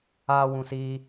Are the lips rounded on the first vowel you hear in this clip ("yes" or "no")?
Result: no